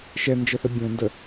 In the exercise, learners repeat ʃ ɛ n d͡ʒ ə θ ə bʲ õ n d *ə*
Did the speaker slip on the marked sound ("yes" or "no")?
no